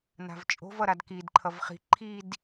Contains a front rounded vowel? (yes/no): no